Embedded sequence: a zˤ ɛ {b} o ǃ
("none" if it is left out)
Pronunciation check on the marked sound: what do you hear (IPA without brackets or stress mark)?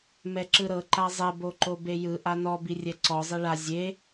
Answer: b